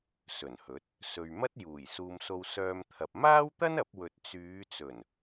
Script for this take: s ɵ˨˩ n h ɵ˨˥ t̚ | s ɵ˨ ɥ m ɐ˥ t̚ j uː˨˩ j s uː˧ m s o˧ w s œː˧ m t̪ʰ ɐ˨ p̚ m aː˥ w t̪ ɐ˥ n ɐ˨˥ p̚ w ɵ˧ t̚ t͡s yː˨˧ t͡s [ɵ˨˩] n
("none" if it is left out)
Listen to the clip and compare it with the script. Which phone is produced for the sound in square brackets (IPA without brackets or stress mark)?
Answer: ɵ˨˩